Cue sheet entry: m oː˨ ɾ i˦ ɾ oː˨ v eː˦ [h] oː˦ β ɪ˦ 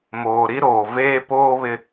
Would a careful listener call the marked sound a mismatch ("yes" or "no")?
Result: yes